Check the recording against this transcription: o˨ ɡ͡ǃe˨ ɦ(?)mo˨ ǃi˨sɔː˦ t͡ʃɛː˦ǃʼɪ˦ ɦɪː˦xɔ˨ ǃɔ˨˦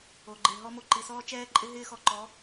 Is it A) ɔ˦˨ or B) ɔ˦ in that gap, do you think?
B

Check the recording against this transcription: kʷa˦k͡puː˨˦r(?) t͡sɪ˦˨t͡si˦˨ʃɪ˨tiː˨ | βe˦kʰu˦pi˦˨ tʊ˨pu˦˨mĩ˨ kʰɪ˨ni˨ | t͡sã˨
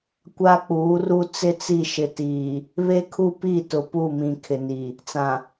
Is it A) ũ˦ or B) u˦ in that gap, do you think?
B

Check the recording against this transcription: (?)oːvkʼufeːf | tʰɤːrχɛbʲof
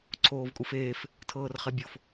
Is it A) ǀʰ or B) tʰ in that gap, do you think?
A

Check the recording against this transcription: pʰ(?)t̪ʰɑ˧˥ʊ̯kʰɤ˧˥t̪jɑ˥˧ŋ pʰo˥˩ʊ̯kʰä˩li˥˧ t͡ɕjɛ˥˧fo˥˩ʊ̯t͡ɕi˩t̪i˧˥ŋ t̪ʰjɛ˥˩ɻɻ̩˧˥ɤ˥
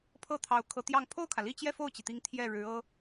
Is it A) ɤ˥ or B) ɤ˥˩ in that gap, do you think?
B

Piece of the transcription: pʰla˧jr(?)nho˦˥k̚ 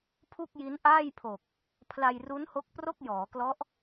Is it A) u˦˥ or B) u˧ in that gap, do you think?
A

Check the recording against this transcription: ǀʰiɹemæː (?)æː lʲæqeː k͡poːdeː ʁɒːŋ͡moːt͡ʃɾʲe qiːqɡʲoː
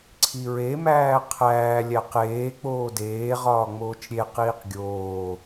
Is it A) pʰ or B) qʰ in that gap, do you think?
B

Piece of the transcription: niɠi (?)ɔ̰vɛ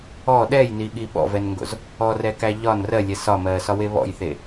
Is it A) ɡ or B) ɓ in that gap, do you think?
B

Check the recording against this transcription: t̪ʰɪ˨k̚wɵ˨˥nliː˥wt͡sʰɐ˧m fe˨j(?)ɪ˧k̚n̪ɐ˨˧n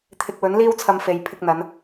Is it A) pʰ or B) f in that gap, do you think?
A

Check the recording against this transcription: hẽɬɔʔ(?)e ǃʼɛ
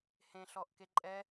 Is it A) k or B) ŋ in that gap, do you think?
A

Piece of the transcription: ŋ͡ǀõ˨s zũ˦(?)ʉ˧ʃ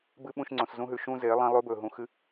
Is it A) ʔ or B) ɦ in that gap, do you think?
B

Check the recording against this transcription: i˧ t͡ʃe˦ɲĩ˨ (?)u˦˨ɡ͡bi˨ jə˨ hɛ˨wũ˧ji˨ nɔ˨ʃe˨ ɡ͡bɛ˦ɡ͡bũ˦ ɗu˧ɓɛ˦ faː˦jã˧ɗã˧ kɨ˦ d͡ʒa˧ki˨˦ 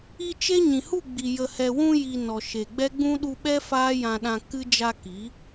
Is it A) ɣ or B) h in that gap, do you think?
B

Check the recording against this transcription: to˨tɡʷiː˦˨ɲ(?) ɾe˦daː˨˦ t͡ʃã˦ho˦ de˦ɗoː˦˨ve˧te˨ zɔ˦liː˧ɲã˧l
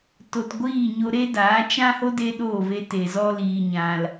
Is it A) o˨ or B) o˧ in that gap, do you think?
B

